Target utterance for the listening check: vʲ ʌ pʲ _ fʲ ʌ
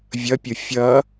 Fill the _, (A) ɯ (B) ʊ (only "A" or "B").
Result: B